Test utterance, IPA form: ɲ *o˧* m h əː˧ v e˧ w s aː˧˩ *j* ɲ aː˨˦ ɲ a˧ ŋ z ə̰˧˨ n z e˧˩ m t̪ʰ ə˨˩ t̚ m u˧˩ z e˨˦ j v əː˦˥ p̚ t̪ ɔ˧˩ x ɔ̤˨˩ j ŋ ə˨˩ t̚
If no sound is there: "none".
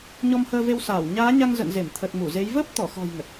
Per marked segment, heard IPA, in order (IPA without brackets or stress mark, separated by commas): ɔ˧, w